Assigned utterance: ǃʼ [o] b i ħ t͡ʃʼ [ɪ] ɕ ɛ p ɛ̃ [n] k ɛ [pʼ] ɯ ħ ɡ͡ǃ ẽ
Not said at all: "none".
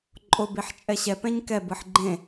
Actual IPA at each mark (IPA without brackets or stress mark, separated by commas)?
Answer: o, ɛ, ɲ, b